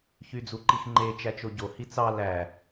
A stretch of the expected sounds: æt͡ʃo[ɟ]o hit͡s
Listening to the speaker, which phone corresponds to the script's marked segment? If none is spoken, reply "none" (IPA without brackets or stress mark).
ɟ